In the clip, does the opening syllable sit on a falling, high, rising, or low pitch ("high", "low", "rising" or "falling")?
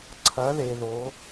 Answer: rising